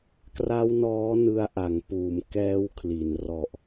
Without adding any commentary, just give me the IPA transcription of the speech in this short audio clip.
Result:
k r a˦˥ w n ɔː˦˥ n ɯ˧ a̯ ʔ a˩˦ ŋ p uː˩˦ m k ɛː˦˥ w kʰ l i˩˦ n r ɔ˨˩ ʔ

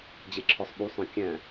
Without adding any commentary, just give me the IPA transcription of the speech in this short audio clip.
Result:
d͡ʑ e ǁʰ ɔ sˤ ɓ u sˤ œ̃ kʲ æ̃

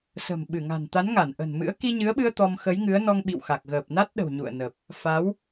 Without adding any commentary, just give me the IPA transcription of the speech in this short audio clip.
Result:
s ə̤˨˩ m ɓ ɨ˧˩ ŋ a̤˨˩ n t̪ a˨˦ n ŋ a˧˩ n ʔ ə̤˨˩ n m ɨ̰˧˥ ə̯ k i˧ ɲ ɨ˨˦ ə̯ ɓ ɨ˧ ə̯ t̪ ɔ˧ m x ə˨˦ j ŋ ɨ˨˦ ə̯ n ɔ˧ ŋ ɓ ḭ˧˨ w x a˨˩ k̚ ɣ əː˨˩ p̚ n a˦˥ t̚ ɗ ə̤˨˩ w ɲ ṵ˧˨ ə̯ n ə˨˩ p̚ | f a˨˦ w

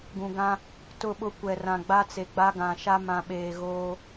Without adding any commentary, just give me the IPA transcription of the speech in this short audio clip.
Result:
ɡ ũ˨ ɡ ã˦ | t ʊ˦˨ ɓ ʊ˦ kʷ ɛ˨ r ã˨ ɡ͡b a˦ t͡s e˨ ɡ͡b a˦ ɡ ã˨ ʃ a˦ m ã˨ ɓ eː˨ ɣ oː˦

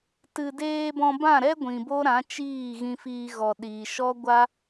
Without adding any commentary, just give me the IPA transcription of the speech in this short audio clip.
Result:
t ɨ˨ d eː˧ b ɔ̃˧ b ã˦˨ ɾ ɛ˦ ɡʷ ĩ˨ b o˦ ɾ ã˨˦ t͡ʃ iː˦˨ ɣ ĩ˧ f iː˧ ɣ ɔ˨ ɗ i˨ ʃ ɔ˦ ɡʷ a˦

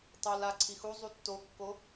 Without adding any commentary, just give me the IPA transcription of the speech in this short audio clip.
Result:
tˤ o l a ǀʰ i x u zˤ u tː o kː o

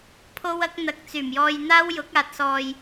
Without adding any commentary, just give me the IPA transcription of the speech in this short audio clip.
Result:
pʰ o˥ w ɐ˥ k̚ n̪ ɐ˧ k̚ t͡s yː˨˩ m j ɔː˧ j n̪ aː˥ w j ʊ˨˥ k̚ aː˨ t̚ s ɔː˨ j

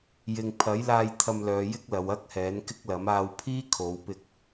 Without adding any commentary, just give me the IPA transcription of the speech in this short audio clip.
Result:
j ɪ˨ ŋ pʰ ɐ˨˥ j l aː˧ j t̪ʰ ɐ˧ m l œː˨˧ j ɪ˥ k̚ l ɐ˨˧ w ɐ˥ k̚ h ɛː˨˥ n k ɪ˥ k̚ l ɐ˨˥ m aː˧ w pʰ iː˥ kʰ o˨˧ w p ɪ˧ k̚

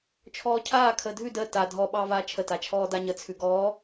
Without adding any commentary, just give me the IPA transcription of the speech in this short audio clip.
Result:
t͡ʃʰ ɔː cʰ aː kʰ əː dʱ ʉ d əː t a dʱ ɔ ɓ ɑː v aː t͡ʃʰ ə t a t͡ʃʰ ɔː d a ɲ ə t͡sʰ ʉ ɡ ɔː

